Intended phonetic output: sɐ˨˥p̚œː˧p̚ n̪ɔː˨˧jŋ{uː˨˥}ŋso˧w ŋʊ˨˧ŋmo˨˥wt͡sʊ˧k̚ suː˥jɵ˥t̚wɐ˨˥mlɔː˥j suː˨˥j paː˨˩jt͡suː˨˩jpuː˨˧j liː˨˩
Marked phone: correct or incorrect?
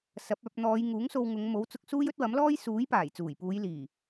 correct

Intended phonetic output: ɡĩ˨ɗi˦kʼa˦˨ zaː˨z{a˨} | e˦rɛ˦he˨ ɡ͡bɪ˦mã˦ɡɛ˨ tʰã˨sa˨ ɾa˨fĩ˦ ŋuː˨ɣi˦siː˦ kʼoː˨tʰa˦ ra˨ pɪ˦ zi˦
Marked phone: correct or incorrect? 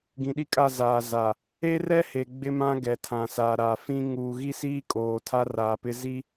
correct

